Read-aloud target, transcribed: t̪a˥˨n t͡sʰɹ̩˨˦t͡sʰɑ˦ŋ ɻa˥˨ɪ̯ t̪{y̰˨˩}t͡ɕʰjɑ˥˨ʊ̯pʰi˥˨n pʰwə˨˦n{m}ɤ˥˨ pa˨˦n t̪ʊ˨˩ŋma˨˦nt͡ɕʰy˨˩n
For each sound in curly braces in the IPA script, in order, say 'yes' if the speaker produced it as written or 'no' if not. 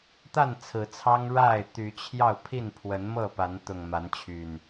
no, yes

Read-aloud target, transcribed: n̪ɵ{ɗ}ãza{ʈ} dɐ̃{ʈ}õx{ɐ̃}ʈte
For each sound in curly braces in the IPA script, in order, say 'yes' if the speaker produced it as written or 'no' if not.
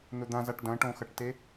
no, yes, yes, no

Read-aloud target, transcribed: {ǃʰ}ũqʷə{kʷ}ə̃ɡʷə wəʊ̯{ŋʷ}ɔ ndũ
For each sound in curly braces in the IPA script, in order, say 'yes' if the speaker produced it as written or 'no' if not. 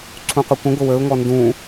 no, yes, no

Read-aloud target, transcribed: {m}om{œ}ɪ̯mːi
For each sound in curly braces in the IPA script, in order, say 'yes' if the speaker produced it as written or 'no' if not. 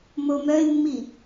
yes, yes

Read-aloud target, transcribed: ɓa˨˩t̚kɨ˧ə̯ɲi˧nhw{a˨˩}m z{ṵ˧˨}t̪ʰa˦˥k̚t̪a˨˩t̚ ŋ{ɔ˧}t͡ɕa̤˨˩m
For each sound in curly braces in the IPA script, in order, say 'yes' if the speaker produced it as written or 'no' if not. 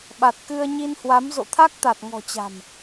no, no, no

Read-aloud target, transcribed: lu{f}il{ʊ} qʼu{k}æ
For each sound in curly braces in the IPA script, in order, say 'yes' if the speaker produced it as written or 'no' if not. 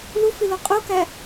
yes, no, yes

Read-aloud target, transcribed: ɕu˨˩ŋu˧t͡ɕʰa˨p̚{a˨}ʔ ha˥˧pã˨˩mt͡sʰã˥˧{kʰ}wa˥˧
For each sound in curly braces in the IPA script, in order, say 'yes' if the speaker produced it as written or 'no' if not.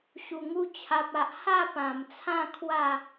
yes, yes

